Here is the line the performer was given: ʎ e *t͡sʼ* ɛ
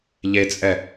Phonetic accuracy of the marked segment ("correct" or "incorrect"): correct